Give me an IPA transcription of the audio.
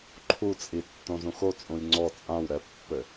ǃʰ u t͡sʼ i tː õ z ũ x o t͡sʼ ũ j ŋ͡ǀ ɔ t͡sʼ ã w ɾ ɛ pː ɘ

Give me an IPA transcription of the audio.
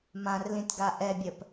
m ã r l ĩ t ɡ a ʔ ɛ bʲ ɜ p

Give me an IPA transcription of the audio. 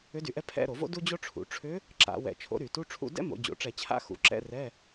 ʏ˧˥ d y˧˩˧ ʔ ɛ˧˥ pʰ ɛ̰˧˥˧ ɾ o˧˩˧ v o̰˥ d u˥ d͡ʑ o˥ ʈ͡ʂʰ ṵ˩˧ ʈ͡ʂʰ ʏ˧˥ | ǁ a̰˧˩˧ w ɛ̰˧˩˧ t͡ʃʰ o̰˧˥ ɾ y˧˩˧ t u˧˥˧ ʈ͡ʂʰ ṵ˧˥˧ d ɛ̰˥ m o̰˩˧ d͡ʑ o̰˩˧ ʈ͡ʂ ɛ˧˩˧ t͡ɕʰ a̰˧˥˧ x ṵ˩˧ ǁ ɛ̰˧˥˧ r ɛ˧˥˧

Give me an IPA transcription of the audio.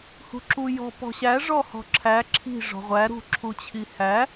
h ṳ ǁ u j ɔ̤ p ɔ̤ ɕ æ ʐ ɔ h ɔ̤ ǁʰ æ ǁʰ i̤ ʐ ɔ̤ ʁʷ æ ɾ ṳ ǁʰ u t͡ɕʰ i h æ

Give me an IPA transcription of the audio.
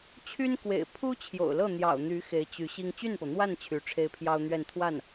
t͡ɕʰ y˥ n k w ḛ˨˩ ɪ̯ pʰ u˥ t͡ɕʰ j o̰˨˩ ʊ̯ l ɤ˥˩ n̪ j ɑ̰˨˩ ʊ̯ n̪ y˧˥ x e˧˥ ɪ̯ t͡ɕ y˧˥ ɕ i˥ ŋ t͡ɕ y˥˩ n p ɤ˩ n̪ w a˥˩ n t͡ɕʰ y˧˥ ʈ͡ʂʰ e˥ ɪ̯ pʰ j ɑ˥ ʊ̯ n̪ ɥ ɛ˥˧ n t̪ʰ w a˥˩ n

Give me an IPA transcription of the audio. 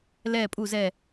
l ɛː˧˩ pʼ u˧˩ z ɛ˧˩

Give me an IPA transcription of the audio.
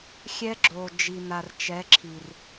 xʲ ɛ˦ ɡ͡ǁ o˨ d͡ʒ i˨ n̪ a˨ r t͡ʃ ɛ˨˦ ǁʰ i˨ r

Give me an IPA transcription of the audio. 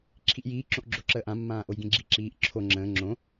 ǁʰ i ʔ j iː ǁ õ ʔ ɡ͡ǁ o ǁ əː ʔ ã mː ãː ʔ o j ɡ ĩ ɡ͡ǁ i ǁ iː ʔ ǁʰ o ŋ͡ǁ ə̃ː ŋ͡ǁ õ

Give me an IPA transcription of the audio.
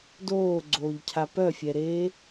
d oː ɡ͡ǀ oː ʎ cʰ a p œ fʲ ɛ ɾ eː

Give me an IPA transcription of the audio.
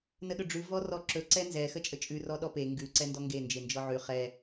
n ə ɗ ɵ ɖ͡ʐ ʉ v ɔ r ɔ ǁ ɵ ǀ ɛ n z ɛ x ə t͡ʃʼ ə t͡ʃʼ ʉ r ɔ ɗ ɔ p e ŋ ɡ ʉ ǀ ɛ n d ɔ ŋ ɡ e n d͡ʒ e n d͡ʒ ɔ ʕ ʉ χ ɛ

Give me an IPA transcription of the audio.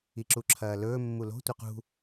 i ǁ u ǁʰ ɐː l ɵː mː u l o̤ tʷ a q ṳ

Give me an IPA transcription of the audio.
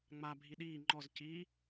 ŋ͡m a bʱ i ɗ iː ŋ͡ǃ ɔ z c i

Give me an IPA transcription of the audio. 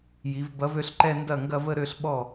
j i˩˧ v b ɐ˨˥ v ø˥˧ ɬ ǃ ɛ˥˧ n d ɐ˥˩ ŋ ɡ ɐ˥˧ v ə˥˧ ɾ ø˥˧ ɬ ɓ ɔ˥˩

